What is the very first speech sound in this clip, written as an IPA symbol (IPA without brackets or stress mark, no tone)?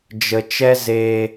d͡ʒ